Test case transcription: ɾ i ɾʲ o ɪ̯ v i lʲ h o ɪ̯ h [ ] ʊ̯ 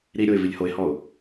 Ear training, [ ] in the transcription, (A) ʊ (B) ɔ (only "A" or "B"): B